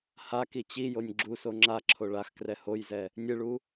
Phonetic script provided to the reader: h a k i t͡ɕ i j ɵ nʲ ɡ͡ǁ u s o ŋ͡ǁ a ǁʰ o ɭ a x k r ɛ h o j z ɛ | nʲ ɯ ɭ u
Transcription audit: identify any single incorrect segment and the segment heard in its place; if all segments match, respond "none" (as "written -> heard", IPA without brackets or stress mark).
ɵ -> o